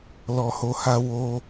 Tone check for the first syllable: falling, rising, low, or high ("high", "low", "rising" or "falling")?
low